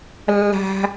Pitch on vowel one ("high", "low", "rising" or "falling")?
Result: low